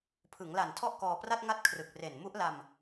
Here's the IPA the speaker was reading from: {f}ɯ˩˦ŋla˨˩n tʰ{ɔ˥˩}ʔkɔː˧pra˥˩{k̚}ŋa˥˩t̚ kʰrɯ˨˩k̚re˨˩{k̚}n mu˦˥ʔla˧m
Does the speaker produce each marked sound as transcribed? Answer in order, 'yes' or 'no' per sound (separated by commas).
no, yes, no, no